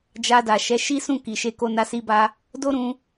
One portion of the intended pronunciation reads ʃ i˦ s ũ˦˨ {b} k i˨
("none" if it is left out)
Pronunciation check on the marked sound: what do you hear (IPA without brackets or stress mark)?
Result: none